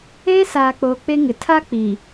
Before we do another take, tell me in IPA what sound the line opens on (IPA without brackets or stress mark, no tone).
eː